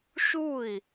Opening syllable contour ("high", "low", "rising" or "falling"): falling